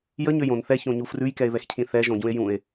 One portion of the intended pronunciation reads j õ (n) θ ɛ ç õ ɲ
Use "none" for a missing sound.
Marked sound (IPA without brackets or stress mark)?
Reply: n